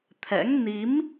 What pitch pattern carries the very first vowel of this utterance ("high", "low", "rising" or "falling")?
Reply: rising